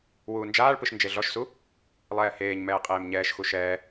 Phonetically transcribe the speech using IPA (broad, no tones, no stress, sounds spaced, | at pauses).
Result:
w uː n d͡ʒ aː ɭ p ɯ ʃ n d͡ʒ e ɮ ɔ ʃ s u | lˠ ɛː h eː ɲ m ɛː qʼ eː m ɲ ɛː ʃ x u ʃ ɛː